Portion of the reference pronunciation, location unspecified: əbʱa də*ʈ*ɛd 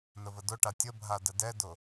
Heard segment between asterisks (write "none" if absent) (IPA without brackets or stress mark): d